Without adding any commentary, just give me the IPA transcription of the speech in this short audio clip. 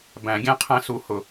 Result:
bæ̃˨˩˦ɡʲæ̃˧˥ qʰæ̃˧su˨˩˦ hʊ˩

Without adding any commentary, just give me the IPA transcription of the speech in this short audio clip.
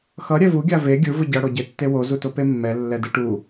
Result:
xʌ ɾʲɛvu ɡʲave ɡʲɯ vɯɟʌ ɽoɟetːewo zutopemːɛ lːɛdɯʈu

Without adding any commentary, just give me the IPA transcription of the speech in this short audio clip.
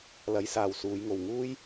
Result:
lɐ˨˧jsaː˨w suː˨˧jŋo˨wŋuː˥j

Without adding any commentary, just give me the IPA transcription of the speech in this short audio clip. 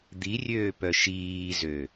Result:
d̪irʲøːpœ ʃiːzø

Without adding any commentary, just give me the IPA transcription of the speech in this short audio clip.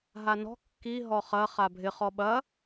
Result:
ɦanɔ̤ kːi ɦɔχɐ χabʱɪ χɔɓɐ

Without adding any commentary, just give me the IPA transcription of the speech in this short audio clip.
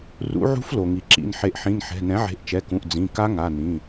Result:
rṵ˩˥ʕṳ˧˥f lo˩ŋi˩ǁḭ˩˧˩n ħe˩˥ʔħĩ˩˧˩nħɛ̤˩˧˩ nɛ̃˩˥ʕe̤˩˥ʔt͡ʃɛ˩˧˩kũ˩˧˩ʔ d͡zĩ˩˧˩ka˧˥ ŋa˩˧˩ nĩ˩˧˩

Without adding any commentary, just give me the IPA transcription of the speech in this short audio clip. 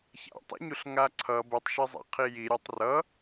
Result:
ça̰tˤa̰ɲuɬ ŋaǀʰʌ bɯtˤʃezˤa̰ qʰiji ɾʲɛtˤrʌ

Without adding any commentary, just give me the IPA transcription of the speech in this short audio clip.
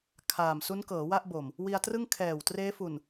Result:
kʰaː˨˩m su˦˥nkɤː˩˦ wa˥˩ʔbo˨˩m | wi˧a̯trɯ˥˩ŋ kʰɛː˨˩w treː˦˥fu˨˩n

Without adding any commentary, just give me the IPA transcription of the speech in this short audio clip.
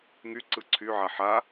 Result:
ŋyǀɯ ǀʰyʕa ħa

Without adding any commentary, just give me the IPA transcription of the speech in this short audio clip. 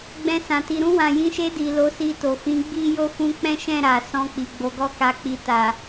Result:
ɡ͡bɛ̃˧sã˨ ti˨ɾũ˧wã˨jĩ˨˦ ʃe˧di˨ lo˨˦si˧to˨ fĩ˨˦ɡ͡bi˦jo˦ fũ˧k͡pɛ̃˦ʃɛ̃˦˨ ɾa˨ sɔ̃˧k͡pi˨ ɡ͡bo˨˦ɡɔ˦ka˧k͡pi˧ ta˨

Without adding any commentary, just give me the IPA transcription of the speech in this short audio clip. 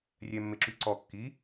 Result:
rʲɛmːeǁyǀɔ kːi

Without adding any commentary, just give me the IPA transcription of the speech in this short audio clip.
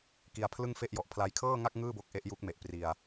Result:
ki˧a̯pʰlɯ˥˩ŋfe˥˩ʔjɔ˨˩ʔ pʰla˧jkʰɤː˥˩ŋa˥˩k̚ ŋɯː˥˩bo˦˥k̚ ʔe˦˥ʔju˦˥k̚me˨˩ʔ pri˧a̯

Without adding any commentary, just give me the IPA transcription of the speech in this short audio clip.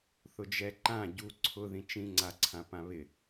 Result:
θʊd͡ʒɛǃã ɟu ǀʰʊ ðĩt͡ʃĩŋ͡ǀa ǀʰãpãβɪ

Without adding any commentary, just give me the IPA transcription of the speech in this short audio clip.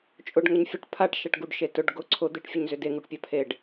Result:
t͡ʃʼʊɖ ŋəɲfʲəʈ pʰaʈʃaʈɡuɖ ʃetʊɖ ɡʊ ǀʰʊ d̪eʈfʲʊɲzʏ deŋuʈpʲa pʰeɖ

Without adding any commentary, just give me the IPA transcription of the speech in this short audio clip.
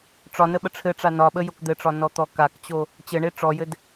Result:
ʈ͡ʂɒnə ɓəʈ͡ʂʰɘʈ͡ʂa nɒɓə jokd̪ɘʈ͡ʂɒ nɔt̪ɔkakt͡ɕo | t͡ɕɘɳe ʈ͡ʂɔjɘd

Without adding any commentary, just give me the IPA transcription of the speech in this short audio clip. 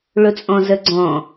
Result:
ɭʊt͡sʼɔ̃zəɡ͡ǀɔ̃

